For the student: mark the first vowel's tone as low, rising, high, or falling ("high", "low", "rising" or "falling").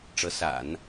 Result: rising